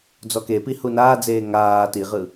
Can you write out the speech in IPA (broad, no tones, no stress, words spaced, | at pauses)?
d͡zɔkepi hunaːd͡zeː ŋaː tiʁɯ